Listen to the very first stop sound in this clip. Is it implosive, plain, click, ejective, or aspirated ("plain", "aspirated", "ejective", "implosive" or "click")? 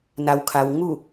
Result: aspirated